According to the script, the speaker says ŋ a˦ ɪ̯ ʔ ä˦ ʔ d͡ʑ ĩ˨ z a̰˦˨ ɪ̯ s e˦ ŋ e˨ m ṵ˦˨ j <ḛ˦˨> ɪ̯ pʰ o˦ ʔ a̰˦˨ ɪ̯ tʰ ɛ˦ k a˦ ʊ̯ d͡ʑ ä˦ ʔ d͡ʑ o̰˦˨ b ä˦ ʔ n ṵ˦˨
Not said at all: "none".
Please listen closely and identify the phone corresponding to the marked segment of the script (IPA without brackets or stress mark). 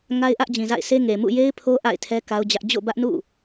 e˦